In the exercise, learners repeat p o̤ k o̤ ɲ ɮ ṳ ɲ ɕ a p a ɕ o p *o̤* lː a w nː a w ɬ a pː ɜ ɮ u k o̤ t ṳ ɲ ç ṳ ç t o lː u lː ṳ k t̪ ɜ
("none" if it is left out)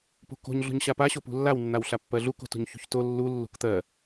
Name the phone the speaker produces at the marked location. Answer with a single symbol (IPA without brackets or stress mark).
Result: ṳ